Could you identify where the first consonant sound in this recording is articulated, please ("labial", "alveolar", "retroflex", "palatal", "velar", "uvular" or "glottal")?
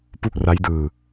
labial